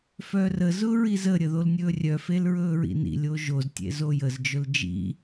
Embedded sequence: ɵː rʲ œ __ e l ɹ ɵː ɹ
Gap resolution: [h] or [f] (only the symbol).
f